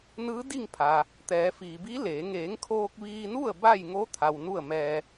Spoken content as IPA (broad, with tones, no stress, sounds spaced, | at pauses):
n ɯː˧˥ d i˥˨ ŋ pʰ aː˩ | t̪ ɛː˩˧ f iː˩ b iː˧˥ l eː˩˧ ŋ eː˩˧ ŋ kʰ oː˧ k̚ ʋ iː˧ n u˥˨ ə̯ b a˥˨ j ŋ o˧˥ t̪ʰ a˩ w n u˥˨ ə̯ m ɛː˧